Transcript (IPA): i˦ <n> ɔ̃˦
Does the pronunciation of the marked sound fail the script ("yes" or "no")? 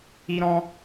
yes